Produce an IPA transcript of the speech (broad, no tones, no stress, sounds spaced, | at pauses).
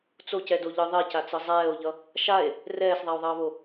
t͡s o c ɛ d o ʎ ɯ ðˤ e c a t͡s ɯ zˤ ɛː o̯ ʎ ʌ | ʃ a e̯ | r ɛː s ðˤ a o̯ ðˤ ʌː β o